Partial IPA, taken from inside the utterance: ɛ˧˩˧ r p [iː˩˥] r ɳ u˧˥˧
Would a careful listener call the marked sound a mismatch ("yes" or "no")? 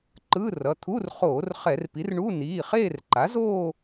yes